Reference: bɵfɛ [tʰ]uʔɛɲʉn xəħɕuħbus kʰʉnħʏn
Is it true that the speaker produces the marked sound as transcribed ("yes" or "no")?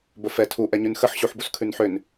yes